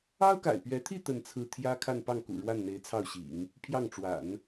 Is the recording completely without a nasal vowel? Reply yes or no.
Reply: yes